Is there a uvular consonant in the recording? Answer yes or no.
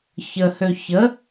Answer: no